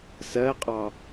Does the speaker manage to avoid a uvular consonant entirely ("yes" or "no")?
no